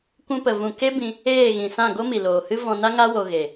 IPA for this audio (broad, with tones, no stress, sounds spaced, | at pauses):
kʷ ũ˧ p ə˨ v ũ˨ k e˦ b ĩ˧ | eː˦˨ ɣ ĩ˨ s ã˦˨ ɡ o˦ m i˨ l oː˨ h ɨ˦ v ɔ̃˧ n a˦ ŋ a˦ w o˧ ɣ e˨